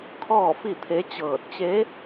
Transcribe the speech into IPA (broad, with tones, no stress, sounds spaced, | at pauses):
kʰ ɔː˥˨ f i˥˨ t̪ʰ e˧˥ t͡ɕ ɤː˧˩ t̚ t͡ɕ e˧˥